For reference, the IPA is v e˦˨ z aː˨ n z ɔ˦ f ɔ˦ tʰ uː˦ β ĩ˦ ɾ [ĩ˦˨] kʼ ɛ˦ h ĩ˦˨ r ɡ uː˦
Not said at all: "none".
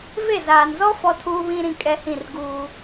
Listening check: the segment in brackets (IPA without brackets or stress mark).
ĩ˦˨